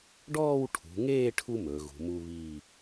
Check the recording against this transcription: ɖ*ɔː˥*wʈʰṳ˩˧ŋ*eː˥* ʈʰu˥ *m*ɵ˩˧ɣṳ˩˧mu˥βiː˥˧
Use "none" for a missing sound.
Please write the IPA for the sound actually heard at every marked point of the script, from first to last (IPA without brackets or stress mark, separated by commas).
ɔː˥˧, eː˥˧, m